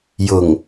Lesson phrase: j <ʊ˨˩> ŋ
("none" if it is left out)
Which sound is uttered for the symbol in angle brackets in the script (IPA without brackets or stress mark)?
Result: ʊ˨˩